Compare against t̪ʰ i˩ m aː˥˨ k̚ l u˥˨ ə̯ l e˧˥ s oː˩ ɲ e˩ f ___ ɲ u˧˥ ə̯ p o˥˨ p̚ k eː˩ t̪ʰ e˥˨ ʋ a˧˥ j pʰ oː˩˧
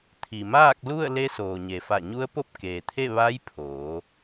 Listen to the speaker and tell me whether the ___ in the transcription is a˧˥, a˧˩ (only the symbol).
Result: a˧˩